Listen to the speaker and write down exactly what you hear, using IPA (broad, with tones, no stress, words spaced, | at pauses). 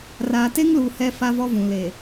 raː˨te˦ŋluː˨ hɛ˦fa˦vɔ˦ vũ˨ le˨